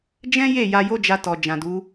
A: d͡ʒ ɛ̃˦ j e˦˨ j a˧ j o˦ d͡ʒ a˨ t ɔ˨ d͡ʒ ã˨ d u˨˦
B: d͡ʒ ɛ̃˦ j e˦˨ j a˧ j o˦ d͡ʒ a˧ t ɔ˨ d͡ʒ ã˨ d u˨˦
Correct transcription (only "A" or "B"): B